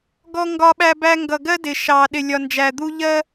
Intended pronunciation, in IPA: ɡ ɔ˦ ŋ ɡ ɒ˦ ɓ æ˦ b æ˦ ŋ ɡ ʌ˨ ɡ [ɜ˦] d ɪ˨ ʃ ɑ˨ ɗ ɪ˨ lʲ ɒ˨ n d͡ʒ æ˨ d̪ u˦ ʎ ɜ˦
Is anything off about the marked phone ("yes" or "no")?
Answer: no